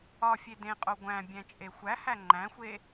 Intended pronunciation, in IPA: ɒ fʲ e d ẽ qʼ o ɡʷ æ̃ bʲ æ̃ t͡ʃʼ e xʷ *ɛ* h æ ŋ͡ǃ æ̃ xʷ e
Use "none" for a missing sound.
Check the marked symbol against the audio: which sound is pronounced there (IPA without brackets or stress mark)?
æ